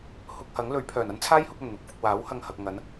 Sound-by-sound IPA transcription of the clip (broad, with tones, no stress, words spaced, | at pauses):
hʊ˧k̚hɐ˨˥ŋ lɵ˨˥ɥpʰœː˨˩n ɐ˥nt͡sʰaː˥jhʊ˧k̚ ɐ˨˩nn̪ʊ˨˥k̚fʊ˨k̚ waː˨˥w hɐ˧ŋhɐ˨k̚ŋɐ˨˥n